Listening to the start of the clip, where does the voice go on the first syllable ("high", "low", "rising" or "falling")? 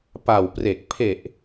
low